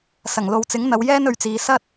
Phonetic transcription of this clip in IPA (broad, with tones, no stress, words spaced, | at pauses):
sɐ˨˩ŋ lo˨wt͡sɪ˨˥ŋn̪ɐ˨˧w jɛː˥nɵ˨˧ɥt͡siː˨˧ sɐ˥t̚